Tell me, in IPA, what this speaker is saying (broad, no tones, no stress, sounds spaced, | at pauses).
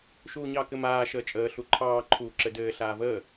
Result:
ʃ uː ɲ ɑ k ɘ m aː ʃ əː t͡ʃʼ əː ɬ u ǃʰ ɑː ǃʰ uː ǁ ɘ d ɘː ɬ aː v əː